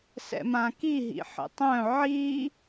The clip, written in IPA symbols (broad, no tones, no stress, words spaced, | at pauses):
sɛ̰mãkiɦḭ ħə̰tˤœ̃ ʕi